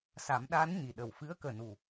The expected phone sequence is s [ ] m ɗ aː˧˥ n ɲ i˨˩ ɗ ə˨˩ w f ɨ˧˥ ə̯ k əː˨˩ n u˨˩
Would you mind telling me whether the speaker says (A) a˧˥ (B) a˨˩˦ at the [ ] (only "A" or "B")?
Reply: B